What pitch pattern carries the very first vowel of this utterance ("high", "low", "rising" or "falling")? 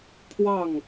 falling